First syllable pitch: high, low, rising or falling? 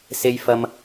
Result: high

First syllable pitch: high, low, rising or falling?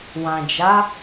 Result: low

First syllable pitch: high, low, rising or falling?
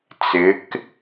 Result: rising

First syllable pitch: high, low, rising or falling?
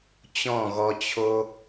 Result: falling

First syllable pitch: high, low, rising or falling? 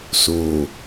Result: low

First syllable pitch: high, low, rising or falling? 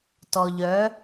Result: low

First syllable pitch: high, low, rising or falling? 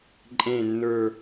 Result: low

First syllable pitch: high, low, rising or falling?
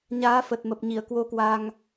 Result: rising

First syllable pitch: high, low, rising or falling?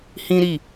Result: high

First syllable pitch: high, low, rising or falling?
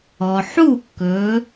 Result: low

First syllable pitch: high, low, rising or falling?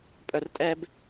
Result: low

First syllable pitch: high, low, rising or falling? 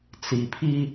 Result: low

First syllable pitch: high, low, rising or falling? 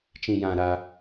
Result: low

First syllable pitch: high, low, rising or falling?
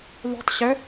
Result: rising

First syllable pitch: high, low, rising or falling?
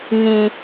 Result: high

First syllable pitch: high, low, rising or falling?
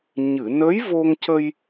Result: low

